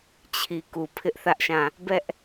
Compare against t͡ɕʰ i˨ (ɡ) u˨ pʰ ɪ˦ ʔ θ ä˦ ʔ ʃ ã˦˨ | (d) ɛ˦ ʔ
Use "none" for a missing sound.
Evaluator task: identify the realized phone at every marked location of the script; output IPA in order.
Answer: k, b

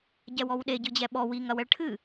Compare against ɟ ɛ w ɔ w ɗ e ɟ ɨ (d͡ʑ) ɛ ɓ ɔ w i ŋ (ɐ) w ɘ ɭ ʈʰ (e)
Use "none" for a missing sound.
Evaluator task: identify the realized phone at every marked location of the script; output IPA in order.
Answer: d͡ʑ, ɐ, ɨ

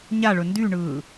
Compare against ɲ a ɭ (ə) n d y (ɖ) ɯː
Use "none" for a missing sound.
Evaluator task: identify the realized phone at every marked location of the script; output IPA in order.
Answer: ɵ, ɳ

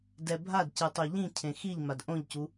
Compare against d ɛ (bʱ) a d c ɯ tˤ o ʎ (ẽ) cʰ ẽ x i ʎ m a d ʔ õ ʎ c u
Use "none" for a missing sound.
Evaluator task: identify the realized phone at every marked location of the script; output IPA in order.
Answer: bʱ, ĩ

